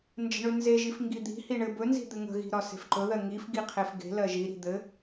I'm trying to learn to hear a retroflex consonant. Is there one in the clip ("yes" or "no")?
yes